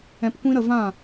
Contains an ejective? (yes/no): no